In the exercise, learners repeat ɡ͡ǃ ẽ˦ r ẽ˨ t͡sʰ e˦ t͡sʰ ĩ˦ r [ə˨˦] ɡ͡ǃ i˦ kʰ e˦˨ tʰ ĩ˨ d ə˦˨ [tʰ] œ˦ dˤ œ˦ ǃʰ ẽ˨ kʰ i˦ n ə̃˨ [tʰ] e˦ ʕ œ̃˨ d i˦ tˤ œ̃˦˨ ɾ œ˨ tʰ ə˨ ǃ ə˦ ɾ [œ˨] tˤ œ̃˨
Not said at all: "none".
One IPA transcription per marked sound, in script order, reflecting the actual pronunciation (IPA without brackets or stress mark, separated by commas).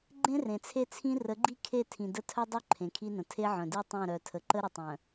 ə˨˦, tʰ, tʰ, ə˨